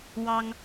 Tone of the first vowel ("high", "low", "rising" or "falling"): high